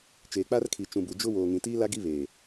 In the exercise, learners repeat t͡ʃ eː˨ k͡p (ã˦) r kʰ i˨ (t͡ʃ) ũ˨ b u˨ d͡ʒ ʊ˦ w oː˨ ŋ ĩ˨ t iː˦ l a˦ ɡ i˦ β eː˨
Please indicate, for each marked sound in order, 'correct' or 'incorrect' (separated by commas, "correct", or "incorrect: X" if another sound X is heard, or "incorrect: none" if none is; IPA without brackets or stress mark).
incorrect: a˦, correct